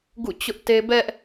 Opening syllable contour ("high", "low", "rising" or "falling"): falling